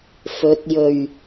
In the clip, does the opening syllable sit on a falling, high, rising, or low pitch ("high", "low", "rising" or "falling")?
rising